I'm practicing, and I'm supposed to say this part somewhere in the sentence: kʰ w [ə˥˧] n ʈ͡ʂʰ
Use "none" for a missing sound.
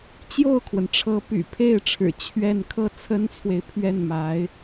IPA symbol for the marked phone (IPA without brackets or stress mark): ə˩